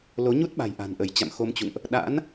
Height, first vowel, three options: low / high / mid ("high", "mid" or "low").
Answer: mid